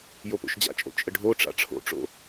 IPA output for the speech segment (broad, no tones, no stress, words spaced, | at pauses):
jopo̰ʃd͡ʑa̰t͡ʃʼo̰ t͡ʃʼəɖʱoʈ͡ʂa̰ ʈ͡ʂʰo̰ʈ͡ʂo̰